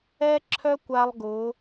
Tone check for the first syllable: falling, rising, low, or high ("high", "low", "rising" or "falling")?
high